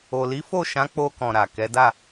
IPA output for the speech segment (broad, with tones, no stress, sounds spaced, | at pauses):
o˨ l i˨˦ f o˦˨ ʃ ã˨˦ k͡p o˧ k ɔ̃˨ ɾ a˨ k ɛ˨˦ d a˦˨